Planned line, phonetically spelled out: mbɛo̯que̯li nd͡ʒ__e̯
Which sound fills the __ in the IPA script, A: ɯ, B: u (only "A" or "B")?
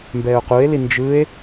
A